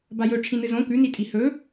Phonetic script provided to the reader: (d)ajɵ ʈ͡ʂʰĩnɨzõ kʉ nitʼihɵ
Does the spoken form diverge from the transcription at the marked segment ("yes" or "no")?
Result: yes